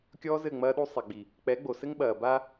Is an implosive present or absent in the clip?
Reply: present